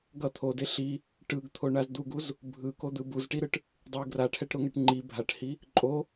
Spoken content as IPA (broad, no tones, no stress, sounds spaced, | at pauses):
ɡ ʌ t̪ʰ o d e ɬ i | ʈ ɯ ɡ t̪ʰ o ɳ a z d̪ u ɡ u z | bʱ ɯ k o d̪ ɯ b u z ʈ i ɾ ɯ ʈ | dˤ ɯ ɡ r a ʈʰ ɛ ʈ ɾ o ŋ ɛ ʈ ŋ͡ǃ i bʱ a ʈ h i | ǃʼ o